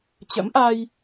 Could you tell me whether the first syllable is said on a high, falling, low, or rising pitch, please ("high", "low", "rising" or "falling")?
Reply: rising